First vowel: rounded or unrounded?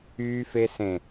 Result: rounded